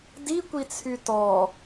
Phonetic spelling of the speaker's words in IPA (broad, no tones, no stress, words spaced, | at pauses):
dikʷit͡sʰy tɔ